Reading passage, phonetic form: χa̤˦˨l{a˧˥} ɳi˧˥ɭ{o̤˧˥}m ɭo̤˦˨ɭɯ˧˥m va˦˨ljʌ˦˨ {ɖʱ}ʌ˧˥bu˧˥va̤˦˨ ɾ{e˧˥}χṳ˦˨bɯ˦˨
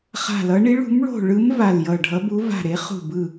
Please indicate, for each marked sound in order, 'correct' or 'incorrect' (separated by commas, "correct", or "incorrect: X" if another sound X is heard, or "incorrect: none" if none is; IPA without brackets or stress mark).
incorrect: ʌ˧˥, incorrect: ṳ˧˥, correct, correct